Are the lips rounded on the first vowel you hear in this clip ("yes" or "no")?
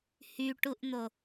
yes